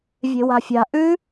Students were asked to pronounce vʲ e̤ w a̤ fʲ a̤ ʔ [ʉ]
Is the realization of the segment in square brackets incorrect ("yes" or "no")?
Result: no